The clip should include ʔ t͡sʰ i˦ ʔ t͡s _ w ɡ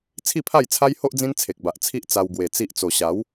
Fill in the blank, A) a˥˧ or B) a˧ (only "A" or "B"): B